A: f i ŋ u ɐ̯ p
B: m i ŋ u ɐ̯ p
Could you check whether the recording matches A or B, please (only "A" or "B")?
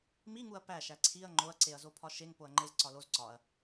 B